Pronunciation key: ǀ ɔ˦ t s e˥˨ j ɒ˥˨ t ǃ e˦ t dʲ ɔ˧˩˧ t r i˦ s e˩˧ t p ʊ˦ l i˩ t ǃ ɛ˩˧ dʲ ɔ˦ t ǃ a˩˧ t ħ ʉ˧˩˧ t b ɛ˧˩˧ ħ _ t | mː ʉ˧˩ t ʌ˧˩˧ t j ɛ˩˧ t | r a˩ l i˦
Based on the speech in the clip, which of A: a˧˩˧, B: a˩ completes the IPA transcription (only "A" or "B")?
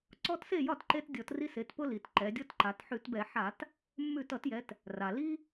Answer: A